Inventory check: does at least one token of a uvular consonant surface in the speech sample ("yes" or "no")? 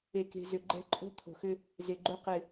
yes